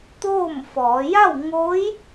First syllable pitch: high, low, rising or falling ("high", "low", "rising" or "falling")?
falling